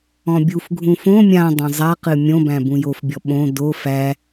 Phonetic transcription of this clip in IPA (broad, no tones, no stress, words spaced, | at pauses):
ɔ̃bʲufɡʱũ fõ mʲãdˤõ zˤaqɨ mʲõbæ̃ bũjofbʲɔ ɓõ do fæ